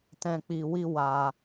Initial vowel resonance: nasal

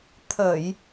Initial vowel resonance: oral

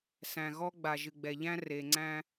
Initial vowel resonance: nasal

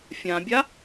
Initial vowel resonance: nasal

